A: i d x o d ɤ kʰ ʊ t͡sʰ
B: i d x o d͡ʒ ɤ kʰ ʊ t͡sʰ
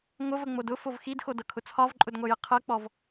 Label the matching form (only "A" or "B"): A